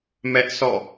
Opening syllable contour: high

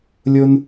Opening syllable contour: high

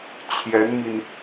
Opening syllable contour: rising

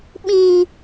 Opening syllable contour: high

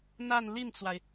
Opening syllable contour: falling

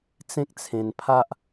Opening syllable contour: high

